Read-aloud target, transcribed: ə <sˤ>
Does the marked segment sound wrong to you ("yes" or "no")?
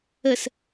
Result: yes